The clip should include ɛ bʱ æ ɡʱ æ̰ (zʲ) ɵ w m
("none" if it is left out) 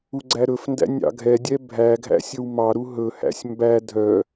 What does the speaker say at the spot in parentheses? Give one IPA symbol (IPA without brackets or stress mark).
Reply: sʲ